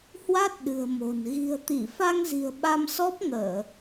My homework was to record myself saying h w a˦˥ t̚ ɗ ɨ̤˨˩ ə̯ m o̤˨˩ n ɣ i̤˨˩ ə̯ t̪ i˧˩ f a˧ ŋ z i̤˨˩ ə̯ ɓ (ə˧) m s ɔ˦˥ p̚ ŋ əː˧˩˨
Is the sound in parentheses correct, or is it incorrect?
incorrect